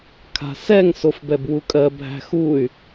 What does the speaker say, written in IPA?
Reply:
kʰ a̤ s ɛ ŋ s o f b ɛ b w u kʼ ɜ bʱ æ̤ x u y̯

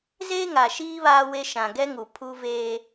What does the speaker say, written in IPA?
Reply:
z eː˦ ŋ a˨ ʃ iː˦ β aː˦ w e˦ ʃ ã˨ ɡ ɛ˦ ŋ u˨ pʰ u˦ v eː˦

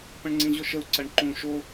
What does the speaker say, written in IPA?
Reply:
p ə̃ ɳ ŋ͡ǀ ĩ ʑ o ʃ ə u̯ ǀ ɐ ɳ ǃ ũ ʃ o

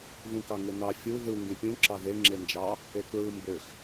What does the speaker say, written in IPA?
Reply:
ð ũ k ɑ ŋ e n ɑ fʲ u ð ɯ ŋ ɡ ẽ pʲ ũ ǁ ɑ ð e ŋ͡ǁ e n d͡ʒ ɑ | e k ɹ ɯ m b ø x

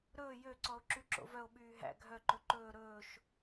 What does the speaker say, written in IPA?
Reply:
ɾ ɵː j ø ǀ ɔ o̯ ǁ y ǁ o̰ v œ o̯ ɓ yː ɦ æ̰ ɡʱ œ ǃ ɵ ǃ ɵː ɾ ɵː ʃ

